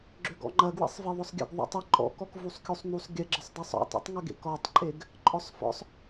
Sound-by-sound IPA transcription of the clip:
ɡ͡ǁʏɡɔ̰ŋ͡ǃɐ ɡwḛsˤveðˤʊsˤɡʲə̰ɡ ðˤṵtˤə ǃʼɔ̰kɔk vusˤkʲusˤnusˤ ɡʲəɡ͡ǁəsˤdˤesˤ ɔ̰tˤṵtˤŋɐɡḛk ɔtˤǃʼeɡ | ǃʼɔsˤfɔ̰sˤ

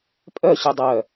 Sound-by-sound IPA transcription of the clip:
pʼœ ɕydˤœ

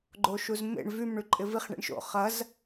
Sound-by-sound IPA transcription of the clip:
ɡ͡ǃoʃuzmḛɳ vym ɳyǃʼɪviχ ɳḭɳʃo̰ χɐz

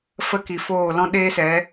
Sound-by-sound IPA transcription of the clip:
fə˦˨ki˨ foː˦˨ lɔ̃˦ɗeː˦sɛ˨˦

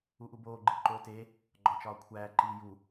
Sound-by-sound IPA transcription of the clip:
uʔuboː ɡ͡ǃiǃoːte | ɡ͡ǃɒt͡ʃɒːkʷʰæː ǃiːju

